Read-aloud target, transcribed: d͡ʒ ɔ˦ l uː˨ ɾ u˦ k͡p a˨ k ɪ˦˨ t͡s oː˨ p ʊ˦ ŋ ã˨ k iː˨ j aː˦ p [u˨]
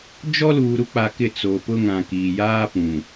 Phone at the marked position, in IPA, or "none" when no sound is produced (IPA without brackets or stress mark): ũ˨